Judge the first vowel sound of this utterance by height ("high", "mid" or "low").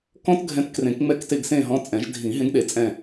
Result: mid